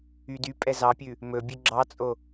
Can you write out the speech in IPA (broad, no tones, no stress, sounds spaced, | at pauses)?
y d y pʼ ɛ z ɑ pʲ ʉ | m ɵ bʲ ʉ ɡ͡ǁ ɑ t͡sʼ o